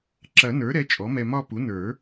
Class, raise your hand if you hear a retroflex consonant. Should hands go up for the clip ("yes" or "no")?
no